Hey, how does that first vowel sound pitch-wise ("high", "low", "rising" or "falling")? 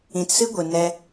low